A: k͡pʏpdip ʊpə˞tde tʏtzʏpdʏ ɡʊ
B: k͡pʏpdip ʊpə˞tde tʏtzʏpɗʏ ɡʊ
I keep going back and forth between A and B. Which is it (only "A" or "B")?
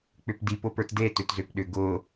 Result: B